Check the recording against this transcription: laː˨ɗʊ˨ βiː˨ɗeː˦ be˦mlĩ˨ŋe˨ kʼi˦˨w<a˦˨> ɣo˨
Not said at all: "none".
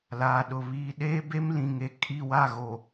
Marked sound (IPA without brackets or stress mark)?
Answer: a˦˨